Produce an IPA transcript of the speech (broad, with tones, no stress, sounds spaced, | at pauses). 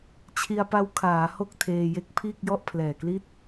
t͡ɕʰ i˧ a̯ p a˦˥ w kʰ aː˩˦ h o˥˩ k̚ tʰ eː˧ j e˦˥ k̚ pʰ iː˥˩ k̚ j ɔ˥˩ ʔ pʰ l ɛː˨˩ k l i˥˩ t̚